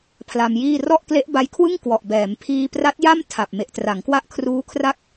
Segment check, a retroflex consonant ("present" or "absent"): absent